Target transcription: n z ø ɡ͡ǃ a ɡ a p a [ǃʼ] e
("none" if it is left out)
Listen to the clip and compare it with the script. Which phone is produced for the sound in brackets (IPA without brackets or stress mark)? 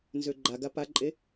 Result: ǃʼ